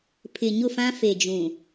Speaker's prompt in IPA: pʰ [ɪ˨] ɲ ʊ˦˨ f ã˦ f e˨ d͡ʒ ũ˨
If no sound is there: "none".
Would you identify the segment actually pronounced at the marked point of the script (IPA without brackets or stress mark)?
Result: ɪ˨